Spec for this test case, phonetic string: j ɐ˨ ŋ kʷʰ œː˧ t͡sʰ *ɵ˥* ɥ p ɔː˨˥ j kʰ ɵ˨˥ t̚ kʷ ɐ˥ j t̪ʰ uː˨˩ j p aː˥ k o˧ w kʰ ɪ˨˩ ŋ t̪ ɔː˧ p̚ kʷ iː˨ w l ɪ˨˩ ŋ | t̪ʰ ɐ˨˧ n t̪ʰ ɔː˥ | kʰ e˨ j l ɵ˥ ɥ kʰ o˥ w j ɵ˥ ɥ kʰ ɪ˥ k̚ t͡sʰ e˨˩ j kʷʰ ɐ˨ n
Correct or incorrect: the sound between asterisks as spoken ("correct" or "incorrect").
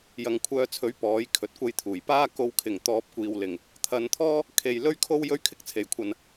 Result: incorrect